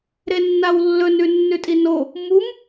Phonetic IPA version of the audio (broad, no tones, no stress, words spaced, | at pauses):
ɾenːawlːɵnʉ nːʉtʼino | mum